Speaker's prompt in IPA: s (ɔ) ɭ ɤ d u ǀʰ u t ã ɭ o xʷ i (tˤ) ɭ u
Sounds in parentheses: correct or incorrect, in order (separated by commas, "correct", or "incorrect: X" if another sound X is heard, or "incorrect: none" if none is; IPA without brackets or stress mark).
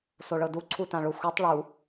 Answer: incorrect: o, correct